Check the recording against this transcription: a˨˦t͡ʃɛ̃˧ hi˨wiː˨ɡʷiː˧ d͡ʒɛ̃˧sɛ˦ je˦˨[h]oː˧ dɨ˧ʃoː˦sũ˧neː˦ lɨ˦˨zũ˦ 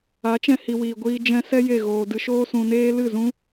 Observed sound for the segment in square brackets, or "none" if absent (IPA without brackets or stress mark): ɣ